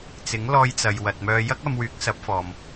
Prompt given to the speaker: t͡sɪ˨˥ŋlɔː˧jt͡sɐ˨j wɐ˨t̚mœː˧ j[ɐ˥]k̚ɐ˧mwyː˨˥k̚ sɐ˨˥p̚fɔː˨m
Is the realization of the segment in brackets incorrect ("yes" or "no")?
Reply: no